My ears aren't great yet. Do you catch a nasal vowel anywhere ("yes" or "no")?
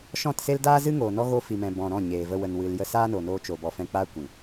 yes